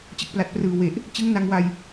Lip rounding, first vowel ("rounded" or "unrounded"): unrounded